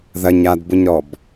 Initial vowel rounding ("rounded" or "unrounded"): unrounded